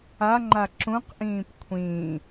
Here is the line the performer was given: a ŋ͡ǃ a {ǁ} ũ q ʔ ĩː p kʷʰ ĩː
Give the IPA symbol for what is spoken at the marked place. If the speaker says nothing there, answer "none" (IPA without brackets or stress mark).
ǁ